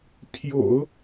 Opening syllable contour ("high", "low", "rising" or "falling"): low